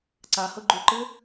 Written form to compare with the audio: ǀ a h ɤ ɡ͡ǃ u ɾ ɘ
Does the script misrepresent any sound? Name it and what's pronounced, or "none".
ɾ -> ǃ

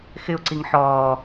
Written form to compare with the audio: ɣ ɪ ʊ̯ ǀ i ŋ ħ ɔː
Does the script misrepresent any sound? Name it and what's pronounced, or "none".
ɣ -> x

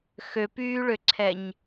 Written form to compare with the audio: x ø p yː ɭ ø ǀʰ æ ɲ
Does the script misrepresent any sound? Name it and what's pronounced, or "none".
æ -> ɛ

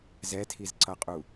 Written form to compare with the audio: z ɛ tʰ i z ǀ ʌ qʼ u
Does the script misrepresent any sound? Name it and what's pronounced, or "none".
none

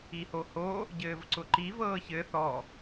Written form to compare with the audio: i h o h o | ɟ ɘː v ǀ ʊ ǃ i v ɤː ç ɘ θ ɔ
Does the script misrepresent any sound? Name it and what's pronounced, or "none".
none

